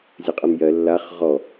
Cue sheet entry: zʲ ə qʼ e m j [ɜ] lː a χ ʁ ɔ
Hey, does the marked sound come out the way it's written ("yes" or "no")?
yes